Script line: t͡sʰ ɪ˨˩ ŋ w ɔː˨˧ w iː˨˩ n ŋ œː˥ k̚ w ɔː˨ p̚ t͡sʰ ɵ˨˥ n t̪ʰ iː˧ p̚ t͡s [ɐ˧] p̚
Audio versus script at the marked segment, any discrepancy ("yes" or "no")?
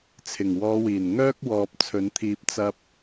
no